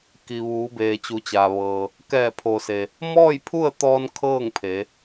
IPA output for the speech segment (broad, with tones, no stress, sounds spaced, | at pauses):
k i˩ ʋ uː˩˧ b eː˩ t͡ɕ u˩˧ t͡ɕ aː˩ ʋ ɤː˩ | k ɛː˧˩ pʰ o˩ s e˩ | m ɔː˥˨ j pʰ u˥˨ ə̯ t̪ ɔː˧ n kʰ ɤː˥˨ ŋ pʰ e˩˧